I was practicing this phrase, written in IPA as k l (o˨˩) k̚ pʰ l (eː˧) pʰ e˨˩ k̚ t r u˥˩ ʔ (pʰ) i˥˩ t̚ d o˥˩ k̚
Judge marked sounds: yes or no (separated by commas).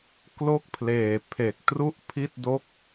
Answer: no, no, yes